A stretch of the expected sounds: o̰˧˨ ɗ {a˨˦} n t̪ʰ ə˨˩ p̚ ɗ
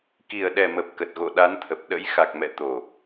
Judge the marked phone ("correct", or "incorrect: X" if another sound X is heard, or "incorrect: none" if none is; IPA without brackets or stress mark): correct